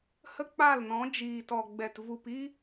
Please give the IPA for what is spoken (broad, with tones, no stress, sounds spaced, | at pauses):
h ə˦ k͡p a˦˨ l n ɔ̃˨˦ d͡ʒ iː˨ t ɔ˨ ɡ͡b ɛ˨ t v u˨ p i˦